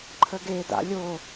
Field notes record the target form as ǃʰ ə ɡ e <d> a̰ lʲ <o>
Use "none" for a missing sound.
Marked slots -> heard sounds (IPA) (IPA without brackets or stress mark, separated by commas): d, o